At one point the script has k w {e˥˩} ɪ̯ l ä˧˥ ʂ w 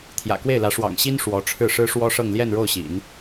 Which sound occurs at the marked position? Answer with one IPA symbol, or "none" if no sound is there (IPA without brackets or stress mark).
e˥˩